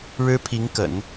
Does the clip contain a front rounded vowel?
no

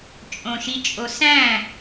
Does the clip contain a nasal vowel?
yes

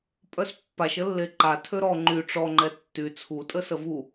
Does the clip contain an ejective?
yes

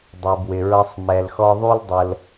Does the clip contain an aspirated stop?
no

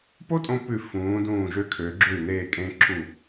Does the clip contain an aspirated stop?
yes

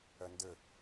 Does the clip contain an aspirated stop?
no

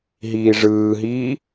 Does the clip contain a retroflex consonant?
yes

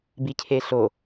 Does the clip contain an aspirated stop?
yes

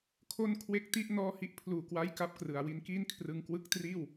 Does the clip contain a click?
no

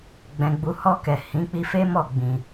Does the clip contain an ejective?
no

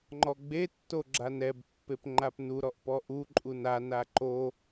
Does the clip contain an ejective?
yes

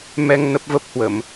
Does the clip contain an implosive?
no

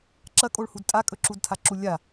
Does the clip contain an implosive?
no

